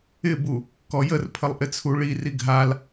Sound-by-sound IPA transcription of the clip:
ɪ b u | k ɔ j ə r pʰ ə lˠ ʔ ɪ t͡sʰ u ɭ i r i ɡʱ a l

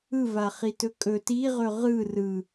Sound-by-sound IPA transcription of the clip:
ɯ v a χ i t ɵ kʼ ɵ t i ʁ ɵ ʁ ɯ r ɯ

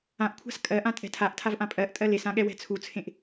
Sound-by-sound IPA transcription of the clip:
ã ʔ kʷʰ a̤ s kʼ ɜ ʔ ã tʼ ɛ̤ tʰ a ʔ tʰ a v ʔ ã pʼ ɜ ʔ tʼ ɜ l e s ã ɠ ɛ w ɛ̤ t͡sʰ u t͡sʰ ẽ ʔ

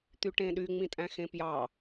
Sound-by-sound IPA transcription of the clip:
t̪ y ʈ ẽ ɗ y ŋ͡m ĩ tʼ æ̃ x ẽ p j ɑ

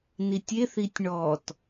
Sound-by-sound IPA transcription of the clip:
n i tʲ e θ i tʲ ɳ ɔ t

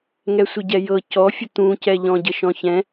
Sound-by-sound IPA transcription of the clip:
ŋ ɛ sʷ ɪ ɟ ɛ j ɤ c ɔ fʲ ə t̪ ũ c ɛ ʎ ɔ̃ ɟ ə ʃ ɔ̃ ç ɛ̃

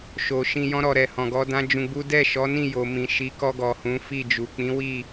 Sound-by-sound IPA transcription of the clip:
ʃ o˨ ʃ ĩ˧ j ɔ̃˦ ɾ ɔ˧ ɾ ɛ˨ h ɔ̃˨ ɡ ɔ˨˦ d ã˦ d͡ʒ ũ˧ ɡ͡b u˦ d ɛ˦˨ ʃ ɔ˨˦ n ĩ˦˨ j o˨ m ĩ˨ ʃ i˨˦ k ɔ˧ ɡ ɔ˨ h ũ˨˦ f i˦˨ d͡ʒ u˨ k͡p ĩ˨˦ w i˦˨

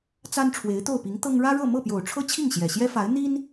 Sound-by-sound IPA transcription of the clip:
t͡s a˥ n ʈ͡ʂʰ w e˧˥ ɪ̯ t̪ o˥˩ ʊ̯ p i˧˥ ŋ t̪ ɤ˥ ŋ ɻ ä˥ ɻ ɤ˥˧ m ɤ˥˩ p j o˨˩ ʊ̯ ʈ͡ʂʰ ɤ˥ t͡ɕʰ i˥˩ ŋ ɕ j ɛ˨˩ ɕ j ɛ˥ f a˧˥ ɪ̯ n̪ i˥ n

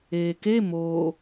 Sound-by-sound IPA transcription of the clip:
eː k e m oː

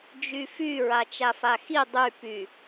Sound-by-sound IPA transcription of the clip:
d͡ʒ y f y ɹ a t͡ʃ a f a x i dˤ y p y

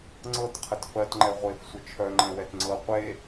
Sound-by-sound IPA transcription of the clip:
ŋ͡ǀ ɤ t qʰ ə t f ɜ t ŋ͡ǃ ɛ ʁʷ e f sʷ ə t͡ʃʰ œ ŋ͡ǃ ɛ̃ w ɛ t ŋ͡ǀ ɤ qʷ e

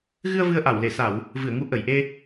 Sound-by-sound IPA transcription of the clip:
ɣ ɨ˧ ə̯ v ɨ˧ ə̯ ʔ a˧˩ w l e˧˩ s a˧˩˨ w | v ɨ˧˩ ə̯ ŋ u˨˦ ʔ ə˧˩ j ʔ e˧

